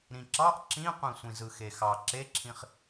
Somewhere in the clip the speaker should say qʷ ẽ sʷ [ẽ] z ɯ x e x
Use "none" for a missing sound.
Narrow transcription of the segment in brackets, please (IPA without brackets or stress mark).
ĩ